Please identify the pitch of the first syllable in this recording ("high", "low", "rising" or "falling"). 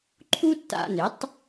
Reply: high